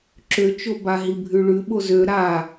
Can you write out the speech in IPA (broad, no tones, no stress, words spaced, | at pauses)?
ǁøt͡ʃo baɦibʱʉɭʉ ɓozø ɾa